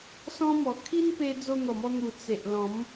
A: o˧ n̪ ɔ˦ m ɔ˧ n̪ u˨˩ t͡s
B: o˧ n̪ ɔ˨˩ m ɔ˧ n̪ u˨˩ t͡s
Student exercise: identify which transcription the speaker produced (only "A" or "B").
B